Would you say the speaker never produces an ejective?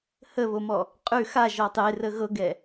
no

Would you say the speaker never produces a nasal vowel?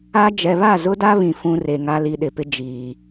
no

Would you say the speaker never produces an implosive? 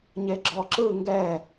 yes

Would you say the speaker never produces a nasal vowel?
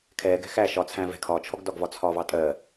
no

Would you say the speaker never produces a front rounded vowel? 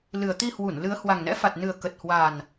yes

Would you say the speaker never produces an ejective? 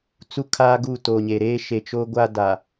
yes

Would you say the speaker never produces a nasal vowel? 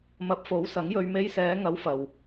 yes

